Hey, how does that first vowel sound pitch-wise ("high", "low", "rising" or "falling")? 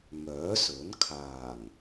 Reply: rising